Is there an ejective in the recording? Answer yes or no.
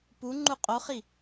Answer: yes